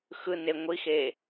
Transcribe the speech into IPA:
x ɯ n e ŋʷ i x e

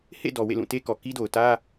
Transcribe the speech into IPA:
h ḛ˦˨ d ɔ˨ w ḛ˦˨ l ũ˦˨ t e˦ k ɔ˨ k i˦ d o˨ ʊ̯ t ä˦

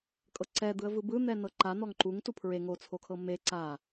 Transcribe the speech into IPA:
kʼ ɤ ǀ ɛ d̪ ɯ ə̯ v ɯ b ɯ n̪ ɛ n ɤ ǃ a n̪ ɔ ŋ ǃ u ŋ t u pʰ ɹ e ŋ o t͡sʰ o kʰ ɤ m e ǀ a

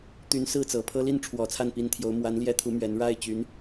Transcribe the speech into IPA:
t̪ y˧˥ n s ɹ̩˥˩ t͡s ɤ˨˩ pʰ ɤ˥ l i˥˩ n ʈ͡ʂʰ w ɔ˨˩ t͡sʰ a˥˩ n p i˧˥ n t̪ʰ j o˧˥ ʊ̯ m w a˧˥ n l j ɛ˥ t̪ʰ u˧˥ m ɥ ɛ˧˥ n ɻ a˥˩ ɪ̯ t͡ɕ y˧˥ n

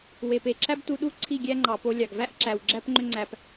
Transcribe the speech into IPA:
w e˨ p e˨ ǁ æ˦ b t u˧ ɗ u˦ ǀʰ i˦˨ ɡʲ æ˦ ŋ͡ǃ ɑ˨ p o˧ lʲ ɑ˨ ɡ v æ˦ ʔ ǁ æ˨ w ɡ͡ǁ æ˦ p ŋ͡ǃ ø˦ ŋ͡ǀ æ˧ p

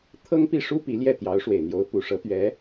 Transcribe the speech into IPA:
t̪ʰ ɤ˥ ŋ p i˥˩ ʂ u˥ p i˧˥ l j ɛ˥˩ t̪ j ɑ˧˥ ʊ̯ ʂ w e˨˩ ɪ̯ n̪ j o˧˥ ʊ̯ p u˨˩ ʂ ɤ˧˥ t̪ ɥ ɛ˧˥

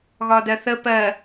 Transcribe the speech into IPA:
ɣ ɒ d ɜ θ ə p ɜ

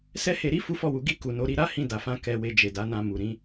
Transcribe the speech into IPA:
s ɛ˦ h e˧ ɾ i˦ f u˦ f ɔ˦˨ w u˨˦ ɡ i˦˨ k u˨ n o˨˦ ɾ i˧ ɾ a˦ h ĩ˧ d a˨ f ã˧ k ɛ˨ w e˨ d͡ʒ e˨ d a˨˦ n ã˧ m u˨ ɾ ĩ˨˦

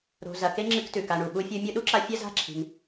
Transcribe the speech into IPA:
ɾ o̤˨ z ɐ˨ k e˦ ŋ͡ǁ ɨ˦ k t ʉ˩ k a˨ ɳ u˩ ɓ u˦ fʲ o˦ mʲ u˦ ɗ u˥ ǁ a˦ fʲ ɐ˥ z a̤˦ ǁʰ i̤˨ ŋ

